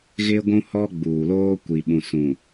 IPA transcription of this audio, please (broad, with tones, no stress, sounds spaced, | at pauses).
ɣ ɪ˦ ɡʷ ũ˦ h ɔ˦ ɡ͡b uː˨ l oː˦ kʷ i˨ ɓ ũ˨ s ũ˨